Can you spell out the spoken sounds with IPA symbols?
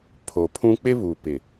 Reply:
pʰ o˨ pʰ ũ˦ k͡p ɪ˦ β u˨ p ɪ˨

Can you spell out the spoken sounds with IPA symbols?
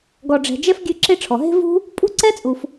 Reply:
ɡ ɔ˨ ɖ͡ʐ ɛ̤˨ d͡ʒ ɛ˥ f ɡʲ ʉ˦ ǁ e˦ ʈ͡ʂʰ ɔ˩ ɦ e̤˥ v ṳ˥ | pʼ ṳ˥ ǀ ɛ˥ t͡sʼ u˨ f

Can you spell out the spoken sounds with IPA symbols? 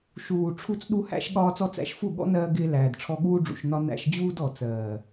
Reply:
ʃ uː˨ ʈ͡ʂʰ u˧ t͡s ɗ u˧ h æ̰˧ ʃ ɠ ɒː˧ t͡s ɔ˧ t͡s æ̰˨˦ ʃ f u˦˨ ɠ ɔ̰˦ n ɜː˧ ɡ ɪː˧ l æː˨ d ʈ͡ʂʰ ɔ˧ ɠ uː˦ ɖ͡ʐ ṵ˨ ʃ n ɒ˧ n æ̰˧ ʃ d͡ʑ uː˦ d ɔ˨ t͡s ɜː˨

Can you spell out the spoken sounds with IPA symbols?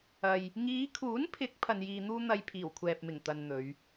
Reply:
ɐ˨ j | ŋ iː˨˧ kʰ uː˨˥ n pʰ ɪ˨˥ k̚ pʰ ɐ˧ n j iː˧ n̪ uː˥ n̪ ɐ˧ j pʰ iː˨˩ w kʷʰ ɛː˨ p̚ m ɪ˨˩ ŋ t̪ ɐ˨ n n̪ ɵ˨˧ ɥ

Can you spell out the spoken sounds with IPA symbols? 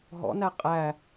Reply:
ɦ ɔ̰ n æ qʼ æ

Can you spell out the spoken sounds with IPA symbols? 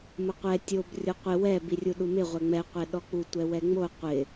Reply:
m ʊ qʷ ɛ tʲ o b rʲ o qʷ ɪ w ɛ b i rʲ u ɗ u m ɪ ʁʷ ɛ ŋ͡m ɛ qʷ ɛ ɗ ɔ k͡p u tʷ ɛ w ɛ ŋ͡m o qʷ ɪ

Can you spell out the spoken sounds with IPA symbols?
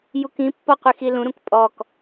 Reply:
j u k ĩ pː ɔ qʷ i x i l ũ ɾ ũ k pʼ ɔ k

